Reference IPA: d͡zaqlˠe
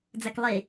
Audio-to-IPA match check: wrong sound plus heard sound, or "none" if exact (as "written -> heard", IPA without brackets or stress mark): q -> k